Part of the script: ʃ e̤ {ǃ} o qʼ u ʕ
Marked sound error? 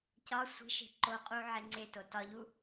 no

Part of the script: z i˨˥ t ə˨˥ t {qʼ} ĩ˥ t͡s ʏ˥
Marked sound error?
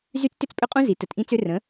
yes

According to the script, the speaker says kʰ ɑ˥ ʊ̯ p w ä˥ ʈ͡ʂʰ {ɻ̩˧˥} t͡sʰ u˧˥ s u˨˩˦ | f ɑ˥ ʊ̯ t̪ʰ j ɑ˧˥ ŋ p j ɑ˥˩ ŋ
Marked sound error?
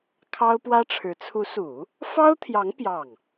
no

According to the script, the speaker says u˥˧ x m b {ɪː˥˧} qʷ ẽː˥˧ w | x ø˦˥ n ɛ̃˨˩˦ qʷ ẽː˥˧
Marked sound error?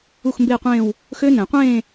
no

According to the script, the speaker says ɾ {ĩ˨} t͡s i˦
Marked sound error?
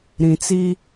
no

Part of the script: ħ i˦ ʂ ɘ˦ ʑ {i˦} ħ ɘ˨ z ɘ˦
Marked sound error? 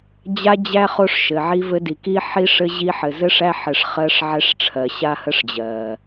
no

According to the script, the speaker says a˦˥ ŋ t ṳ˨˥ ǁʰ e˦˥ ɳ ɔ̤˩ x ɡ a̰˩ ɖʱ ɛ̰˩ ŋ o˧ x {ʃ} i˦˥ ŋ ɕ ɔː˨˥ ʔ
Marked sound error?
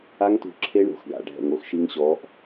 no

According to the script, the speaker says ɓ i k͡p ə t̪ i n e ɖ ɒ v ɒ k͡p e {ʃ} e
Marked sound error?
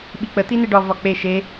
no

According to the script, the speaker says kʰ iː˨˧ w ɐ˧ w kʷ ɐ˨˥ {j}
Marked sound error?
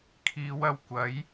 no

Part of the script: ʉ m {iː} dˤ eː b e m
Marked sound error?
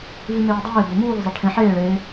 yes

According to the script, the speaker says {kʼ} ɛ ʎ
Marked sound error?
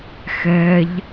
yes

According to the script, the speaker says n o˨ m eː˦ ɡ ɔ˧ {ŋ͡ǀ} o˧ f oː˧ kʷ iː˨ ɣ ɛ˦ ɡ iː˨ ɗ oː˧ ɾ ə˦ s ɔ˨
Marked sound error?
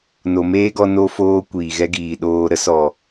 yes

